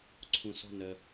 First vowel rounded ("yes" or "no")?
yes